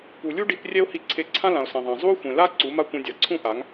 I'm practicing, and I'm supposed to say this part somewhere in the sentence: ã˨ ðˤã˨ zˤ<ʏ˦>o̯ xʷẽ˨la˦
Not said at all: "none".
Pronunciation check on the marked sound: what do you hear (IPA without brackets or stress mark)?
u˦